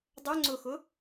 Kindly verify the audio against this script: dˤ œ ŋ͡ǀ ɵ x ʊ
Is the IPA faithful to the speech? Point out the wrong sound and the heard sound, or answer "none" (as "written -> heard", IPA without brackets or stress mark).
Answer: ɵ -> ʊ